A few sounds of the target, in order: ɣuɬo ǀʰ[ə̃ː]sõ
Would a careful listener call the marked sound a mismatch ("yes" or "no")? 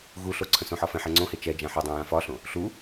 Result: yes